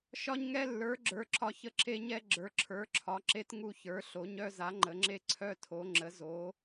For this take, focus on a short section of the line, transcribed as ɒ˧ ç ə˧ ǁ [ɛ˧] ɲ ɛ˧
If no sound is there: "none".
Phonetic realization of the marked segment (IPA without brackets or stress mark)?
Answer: e˧